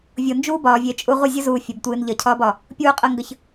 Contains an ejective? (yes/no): yes